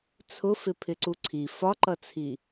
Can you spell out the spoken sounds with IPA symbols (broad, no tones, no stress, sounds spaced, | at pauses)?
t͡sʰ ʊ f ɪ pʰ ɪ ǀ u ǀʰ i f ɒ ǃ ʌ t͡sʰ i